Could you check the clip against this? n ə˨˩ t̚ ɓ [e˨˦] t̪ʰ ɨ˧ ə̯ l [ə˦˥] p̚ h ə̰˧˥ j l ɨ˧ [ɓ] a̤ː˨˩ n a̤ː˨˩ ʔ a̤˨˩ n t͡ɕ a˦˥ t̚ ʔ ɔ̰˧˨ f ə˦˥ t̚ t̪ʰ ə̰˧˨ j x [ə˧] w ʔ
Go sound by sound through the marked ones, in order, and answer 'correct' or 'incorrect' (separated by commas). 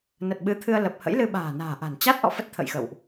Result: incorrect, incorrect, correct, incorrect